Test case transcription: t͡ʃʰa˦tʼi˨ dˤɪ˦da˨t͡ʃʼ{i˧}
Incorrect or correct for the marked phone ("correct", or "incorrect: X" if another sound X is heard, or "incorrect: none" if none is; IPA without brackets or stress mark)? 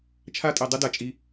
correct